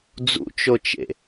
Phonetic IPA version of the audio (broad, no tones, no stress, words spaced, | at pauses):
d͡zṵt͡ʃot͡ʃḛ